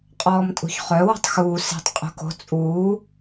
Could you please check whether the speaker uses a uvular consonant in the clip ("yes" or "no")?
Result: yes